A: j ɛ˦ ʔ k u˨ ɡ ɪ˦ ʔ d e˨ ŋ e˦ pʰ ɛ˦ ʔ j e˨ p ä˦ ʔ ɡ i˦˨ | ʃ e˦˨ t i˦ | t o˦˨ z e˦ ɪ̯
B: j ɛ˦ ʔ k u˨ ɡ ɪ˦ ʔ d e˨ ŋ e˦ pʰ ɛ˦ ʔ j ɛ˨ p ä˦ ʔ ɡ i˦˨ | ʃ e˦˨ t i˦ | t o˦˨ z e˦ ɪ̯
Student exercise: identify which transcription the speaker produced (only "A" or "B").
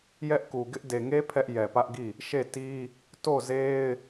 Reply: B